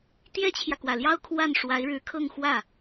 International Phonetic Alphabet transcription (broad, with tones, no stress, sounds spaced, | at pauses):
t̪ j ɛ˥ t͡ɕʰ j ä˨ k w ä˨˩ l j ɑ˥ ʊ̯ kʰ w a˥˩ n ʂ w a˧˥ ɪ̯ ɻ ɻ̩˧˥ kʰ ɤ˥˧ ŋ x w ä˥˩